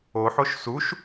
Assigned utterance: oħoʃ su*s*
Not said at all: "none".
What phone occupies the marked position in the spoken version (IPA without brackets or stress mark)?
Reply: ʃ